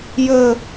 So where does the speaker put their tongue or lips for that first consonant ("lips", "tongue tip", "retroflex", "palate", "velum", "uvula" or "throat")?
palate